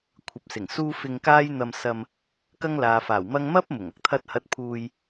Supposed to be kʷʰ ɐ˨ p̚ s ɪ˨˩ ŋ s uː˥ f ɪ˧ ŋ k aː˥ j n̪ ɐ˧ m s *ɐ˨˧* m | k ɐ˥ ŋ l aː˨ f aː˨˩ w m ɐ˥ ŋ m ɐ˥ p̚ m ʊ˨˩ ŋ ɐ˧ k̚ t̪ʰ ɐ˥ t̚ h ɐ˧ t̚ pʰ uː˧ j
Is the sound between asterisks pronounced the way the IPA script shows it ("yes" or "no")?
no